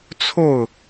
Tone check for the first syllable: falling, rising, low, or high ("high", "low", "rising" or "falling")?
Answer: falling